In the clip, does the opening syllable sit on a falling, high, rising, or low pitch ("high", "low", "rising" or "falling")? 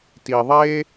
low